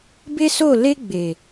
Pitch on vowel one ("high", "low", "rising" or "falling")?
high